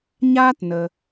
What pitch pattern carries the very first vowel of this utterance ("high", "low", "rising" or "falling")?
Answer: high